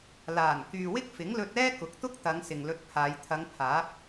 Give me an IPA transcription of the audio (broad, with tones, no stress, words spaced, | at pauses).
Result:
laː˨˩n kyː˨wɪ˥k̚fɪ˨˥ŋlɵ˧t̚ ɛː˥kʊ˨˥k̚t̪ʊ˥k̚ t̪ɐ˨˧ŋ sɪ˨ŋlɵ˧t̚pʰaː˨˧j t̪ʰɐ˨˧ŋpʰaː˨˥p̚